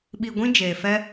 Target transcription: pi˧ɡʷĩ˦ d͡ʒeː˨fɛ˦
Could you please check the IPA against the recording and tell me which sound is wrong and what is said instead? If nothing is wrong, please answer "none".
p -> ɓ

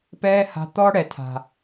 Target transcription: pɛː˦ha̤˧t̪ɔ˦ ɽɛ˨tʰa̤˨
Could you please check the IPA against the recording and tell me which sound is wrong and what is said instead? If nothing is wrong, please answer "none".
none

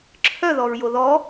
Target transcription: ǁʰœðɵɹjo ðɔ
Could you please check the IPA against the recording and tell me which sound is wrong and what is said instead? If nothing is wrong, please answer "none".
ɵ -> ɔ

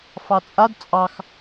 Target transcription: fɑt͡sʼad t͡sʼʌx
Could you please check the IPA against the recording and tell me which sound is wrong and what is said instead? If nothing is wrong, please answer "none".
ʌ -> ɑ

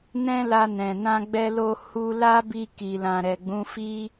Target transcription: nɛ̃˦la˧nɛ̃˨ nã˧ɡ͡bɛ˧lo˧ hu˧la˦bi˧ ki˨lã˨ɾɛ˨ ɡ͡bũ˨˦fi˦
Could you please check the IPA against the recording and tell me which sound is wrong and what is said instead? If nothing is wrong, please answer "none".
none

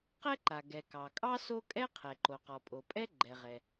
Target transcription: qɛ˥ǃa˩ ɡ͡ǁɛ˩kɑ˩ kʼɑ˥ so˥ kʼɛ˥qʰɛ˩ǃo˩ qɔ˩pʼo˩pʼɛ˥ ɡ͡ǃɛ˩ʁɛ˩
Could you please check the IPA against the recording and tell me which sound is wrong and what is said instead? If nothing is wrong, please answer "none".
ɡ͡ǁ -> ɡ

